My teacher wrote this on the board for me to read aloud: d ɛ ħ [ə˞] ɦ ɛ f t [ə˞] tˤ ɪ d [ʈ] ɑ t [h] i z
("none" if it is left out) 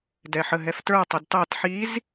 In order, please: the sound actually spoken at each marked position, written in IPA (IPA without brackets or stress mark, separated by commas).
ə, ə˞, t, ħ